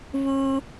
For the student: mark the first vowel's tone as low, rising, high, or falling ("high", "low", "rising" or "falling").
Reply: high